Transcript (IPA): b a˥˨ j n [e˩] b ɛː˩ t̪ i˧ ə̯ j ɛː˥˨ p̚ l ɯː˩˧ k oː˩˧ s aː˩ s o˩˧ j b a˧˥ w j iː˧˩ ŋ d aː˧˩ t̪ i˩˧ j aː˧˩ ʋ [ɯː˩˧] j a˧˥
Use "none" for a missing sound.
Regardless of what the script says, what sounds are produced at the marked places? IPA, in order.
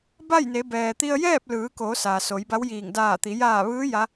e˩˧, ɯː˧˥

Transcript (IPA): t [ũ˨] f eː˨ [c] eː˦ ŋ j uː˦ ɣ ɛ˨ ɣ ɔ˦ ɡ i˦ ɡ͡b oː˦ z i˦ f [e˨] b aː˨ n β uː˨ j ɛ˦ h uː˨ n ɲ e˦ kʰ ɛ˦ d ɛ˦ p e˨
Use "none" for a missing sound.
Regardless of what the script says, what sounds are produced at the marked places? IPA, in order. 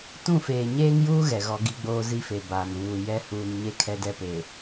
ũ˦˨, ɲ, e˨

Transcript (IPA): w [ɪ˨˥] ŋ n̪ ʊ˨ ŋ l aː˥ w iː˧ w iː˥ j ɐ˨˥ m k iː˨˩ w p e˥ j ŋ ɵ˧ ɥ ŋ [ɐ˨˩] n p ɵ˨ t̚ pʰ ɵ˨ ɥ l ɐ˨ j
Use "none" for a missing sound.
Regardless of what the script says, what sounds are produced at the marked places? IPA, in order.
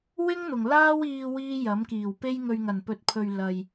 ɪ˥, ɐ˨˩

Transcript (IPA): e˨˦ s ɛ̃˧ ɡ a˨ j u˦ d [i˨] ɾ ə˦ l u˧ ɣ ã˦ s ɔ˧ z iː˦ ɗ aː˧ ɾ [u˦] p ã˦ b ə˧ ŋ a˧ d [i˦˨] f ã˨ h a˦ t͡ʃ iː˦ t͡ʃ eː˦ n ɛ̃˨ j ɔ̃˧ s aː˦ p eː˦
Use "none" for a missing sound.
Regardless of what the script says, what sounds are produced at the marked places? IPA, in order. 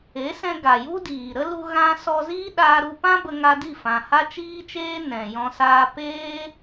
iː˨, u˧, i˦˨

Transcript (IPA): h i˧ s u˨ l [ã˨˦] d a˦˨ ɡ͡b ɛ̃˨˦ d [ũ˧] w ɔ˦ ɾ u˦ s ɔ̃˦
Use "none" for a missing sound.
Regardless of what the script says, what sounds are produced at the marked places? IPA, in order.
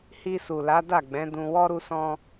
a˨˦, ũ˧

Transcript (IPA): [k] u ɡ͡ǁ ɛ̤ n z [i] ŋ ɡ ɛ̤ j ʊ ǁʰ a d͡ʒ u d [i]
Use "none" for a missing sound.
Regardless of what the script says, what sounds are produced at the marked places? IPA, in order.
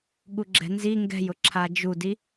ɠ, i, i

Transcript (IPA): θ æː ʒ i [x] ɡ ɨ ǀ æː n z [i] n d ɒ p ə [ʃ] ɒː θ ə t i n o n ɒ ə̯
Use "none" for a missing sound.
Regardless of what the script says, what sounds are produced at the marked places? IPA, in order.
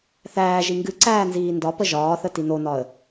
ŋ, iː, ʒ

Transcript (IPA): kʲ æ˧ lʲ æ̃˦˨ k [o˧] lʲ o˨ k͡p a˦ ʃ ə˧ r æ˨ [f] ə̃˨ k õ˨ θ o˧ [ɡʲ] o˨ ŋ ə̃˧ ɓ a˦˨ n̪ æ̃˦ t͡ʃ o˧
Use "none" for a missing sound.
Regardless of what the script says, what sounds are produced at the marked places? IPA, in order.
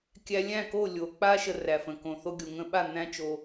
o˦˨, f, ɡʲ

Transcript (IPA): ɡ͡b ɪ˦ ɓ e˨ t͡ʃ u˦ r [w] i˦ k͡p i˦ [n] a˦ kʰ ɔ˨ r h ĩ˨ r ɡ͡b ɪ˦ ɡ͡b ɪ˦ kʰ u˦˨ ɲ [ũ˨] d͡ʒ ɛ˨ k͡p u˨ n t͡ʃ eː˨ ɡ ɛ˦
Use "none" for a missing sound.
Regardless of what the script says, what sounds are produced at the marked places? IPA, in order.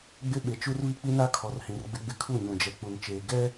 β, n, ũ˨

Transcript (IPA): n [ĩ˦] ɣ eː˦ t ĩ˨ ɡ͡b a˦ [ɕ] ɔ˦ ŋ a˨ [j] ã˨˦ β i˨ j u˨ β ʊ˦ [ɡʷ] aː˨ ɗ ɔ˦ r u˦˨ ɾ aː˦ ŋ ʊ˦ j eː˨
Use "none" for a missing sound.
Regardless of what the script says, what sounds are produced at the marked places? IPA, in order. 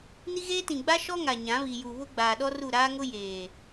i˦, ʃ, ɲ, ɡ͡b

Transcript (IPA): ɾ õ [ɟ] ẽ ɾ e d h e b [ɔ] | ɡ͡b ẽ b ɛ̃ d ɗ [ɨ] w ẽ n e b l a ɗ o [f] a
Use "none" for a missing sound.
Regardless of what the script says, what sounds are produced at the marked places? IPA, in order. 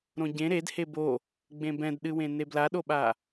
ɟ, o, ɨ, ɓ

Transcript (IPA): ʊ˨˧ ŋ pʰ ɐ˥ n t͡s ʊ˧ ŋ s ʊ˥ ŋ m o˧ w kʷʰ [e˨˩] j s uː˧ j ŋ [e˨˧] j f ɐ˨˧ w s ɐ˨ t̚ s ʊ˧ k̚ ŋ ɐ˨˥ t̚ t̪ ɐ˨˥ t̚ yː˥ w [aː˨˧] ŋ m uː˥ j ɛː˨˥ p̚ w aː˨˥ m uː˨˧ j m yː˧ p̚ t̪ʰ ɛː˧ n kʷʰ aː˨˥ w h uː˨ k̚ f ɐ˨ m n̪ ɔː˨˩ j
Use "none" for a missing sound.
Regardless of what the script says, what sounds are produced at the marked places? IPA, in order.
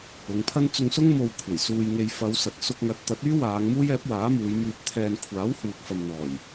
e˨˩, e˧, aː˨˧

